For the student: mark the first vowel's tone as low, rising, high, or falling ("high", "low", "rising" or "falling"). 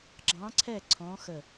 rising